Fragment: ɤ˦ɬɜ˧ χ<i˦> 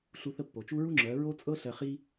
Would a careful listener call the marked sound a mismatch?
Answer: no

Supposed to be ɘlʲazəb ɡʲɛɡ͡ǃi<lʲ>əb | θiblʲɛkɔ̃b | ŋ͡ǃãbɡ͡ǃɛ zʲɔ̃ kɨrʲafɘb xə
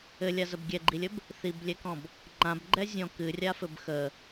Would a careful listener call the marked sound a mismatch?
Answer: no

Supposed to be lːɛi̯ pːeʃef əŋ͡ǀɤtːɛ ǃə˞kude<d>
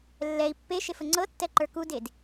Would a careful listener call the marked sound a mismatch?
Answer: no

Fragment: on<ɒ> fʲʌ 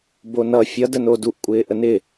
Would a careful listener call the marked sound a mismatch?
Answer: yes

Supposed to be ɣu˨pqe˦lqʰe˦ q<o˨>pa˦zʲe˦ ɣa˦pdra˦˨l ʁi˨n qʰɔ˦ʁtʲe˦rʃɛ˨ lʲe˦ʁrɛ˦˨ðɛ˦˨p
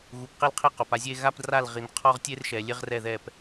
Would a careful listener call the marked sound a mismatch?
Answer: no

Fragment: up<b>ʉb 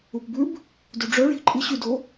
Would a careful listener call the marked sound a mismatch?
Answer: no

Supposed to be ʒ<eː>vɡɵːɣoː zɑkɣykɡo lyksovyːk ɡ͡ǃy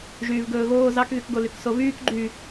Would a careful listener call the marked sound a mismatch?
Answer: yes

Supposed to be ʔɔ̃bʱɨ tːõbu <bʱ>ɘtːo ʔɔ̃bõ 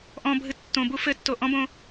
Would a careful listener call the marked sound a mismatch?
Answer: yes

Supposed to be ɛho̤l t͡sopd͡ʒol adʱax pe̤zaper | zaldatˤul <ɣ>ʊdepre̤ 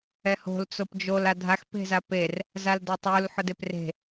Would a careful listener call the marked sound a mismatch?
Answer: yes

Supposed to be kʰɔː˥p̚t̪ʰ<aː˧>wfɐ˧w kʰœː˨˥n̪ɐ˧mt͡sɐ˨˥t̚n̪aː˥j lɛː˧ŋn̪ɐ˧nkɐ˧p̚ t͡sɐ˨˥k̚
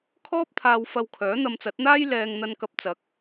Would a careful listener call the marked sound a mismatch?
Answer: no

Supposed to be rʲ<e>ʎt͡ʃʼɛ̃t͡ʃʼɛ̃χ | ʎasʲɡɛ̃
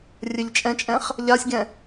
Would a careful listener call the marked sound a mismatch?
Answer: yes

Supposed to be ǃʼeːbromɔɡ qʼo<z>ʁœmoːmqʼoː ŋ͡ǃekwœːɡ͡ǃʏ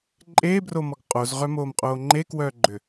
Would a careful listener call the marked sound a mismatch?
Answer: no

